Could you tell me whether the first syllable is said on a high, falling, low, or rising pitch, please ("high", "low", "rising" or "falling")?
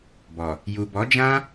low